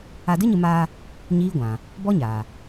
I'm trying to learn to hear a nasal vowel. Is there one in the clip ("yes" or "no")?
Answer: yes